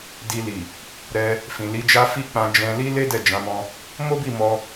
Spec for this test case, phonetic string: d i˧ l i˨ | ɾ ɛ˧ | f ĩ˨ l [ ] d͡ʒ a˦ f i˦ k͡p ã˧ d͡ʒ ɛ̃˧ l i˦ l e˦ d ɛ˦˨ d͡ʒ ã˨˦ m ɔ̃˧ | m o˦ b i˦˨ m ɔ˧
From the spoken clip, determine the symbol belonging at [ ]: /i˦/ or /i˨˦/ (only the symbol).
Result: i˨˦